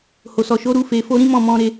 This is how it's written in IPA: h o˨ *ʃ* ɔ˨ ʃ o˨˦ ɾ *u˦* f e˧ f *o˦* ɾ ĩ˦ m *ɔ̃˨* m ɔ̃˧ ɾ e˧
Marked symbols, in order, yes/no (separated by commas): no, yes, yes, no